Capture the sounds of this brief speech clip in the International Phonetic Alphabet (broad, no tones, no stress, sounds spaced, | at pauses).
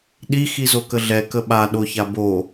ɗ i x i z o k ə ɮ ɛ k ə ɓ a ɗ o ç a b o